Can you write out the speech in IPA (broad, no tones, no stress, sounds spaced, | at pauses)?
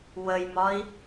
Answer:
w ə j m ɒ i̯